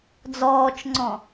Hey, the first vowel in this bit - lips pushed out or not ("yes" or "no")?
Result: yes